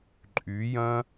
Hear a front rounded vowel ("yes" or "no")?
yes